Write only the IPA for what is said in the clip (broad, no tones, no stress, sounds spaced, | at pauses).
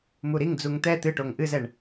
m u ɾ i ŋ d͡z u ŋ t̪ ɛ t̪ ɨ ʈ o ŋ ʔ ɨ z ɛ ɳ